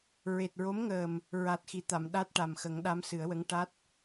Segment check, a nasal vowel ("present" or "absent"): absent